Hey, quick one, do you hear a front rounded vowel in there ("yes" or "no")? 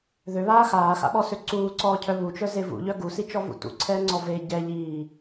yes